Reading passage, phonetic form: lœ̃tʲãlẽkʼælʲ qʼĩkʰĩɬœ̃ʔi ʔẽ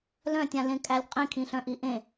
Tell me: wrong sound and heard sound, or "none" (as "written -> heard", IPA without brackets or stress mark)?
none